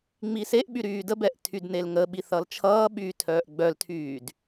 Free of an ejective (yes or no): yes